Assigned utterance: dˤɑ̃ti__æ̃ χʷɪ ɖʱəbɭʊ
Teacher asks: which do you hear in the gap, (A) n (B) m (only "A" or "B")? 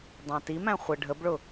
B